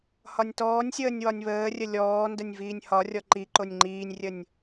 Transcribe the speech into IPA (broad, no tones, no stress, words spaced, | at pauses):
hɒnʲtɔːnʲsʲəːnʲ wɒnʲβəːrʲə lʲɔːndənʲ viːnʲhɒrʲɔ ǃi ǃonʲŋ͡ǃiːnʲrʲənʲ